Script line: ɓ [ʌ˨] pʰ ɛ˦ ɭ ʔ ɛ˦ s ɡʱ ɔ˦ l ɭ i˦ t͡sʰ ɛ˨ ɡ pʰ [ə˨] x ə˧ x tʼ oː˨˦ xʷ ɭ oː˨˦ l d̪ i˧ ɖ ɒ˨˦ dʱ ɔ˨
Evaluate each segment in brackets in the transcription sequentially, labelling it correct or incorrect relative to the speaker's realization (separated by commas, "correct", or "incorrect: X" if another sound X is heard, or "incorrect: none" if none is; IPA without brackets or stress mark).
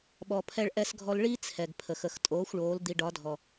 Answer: incorrect: ɔ˨, correct